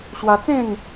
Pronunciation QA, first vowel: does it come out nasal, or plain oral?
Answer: oral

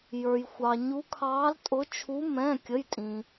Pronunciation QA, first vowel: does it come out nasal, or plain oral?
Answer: oral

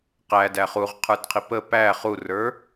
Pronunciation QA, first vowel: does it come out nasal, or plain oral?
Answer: oral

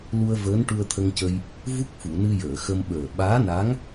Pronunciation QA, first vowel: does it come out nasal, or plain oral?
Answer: oral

